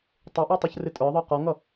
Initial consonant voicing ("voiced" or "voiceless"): voiceless